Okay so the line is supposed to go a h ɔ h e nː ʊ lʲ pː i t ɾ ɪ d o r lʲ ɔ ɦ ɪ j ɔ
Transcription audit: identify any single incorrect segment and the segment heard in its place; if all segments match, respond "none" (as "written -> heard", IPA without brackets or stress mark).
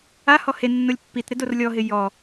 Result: none